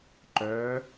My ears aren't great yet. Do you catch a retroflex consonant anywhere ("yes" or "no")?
no